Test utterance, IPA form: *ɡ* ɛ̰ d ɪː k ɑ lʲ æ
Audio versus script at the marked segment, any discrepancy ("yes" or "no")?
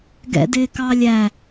no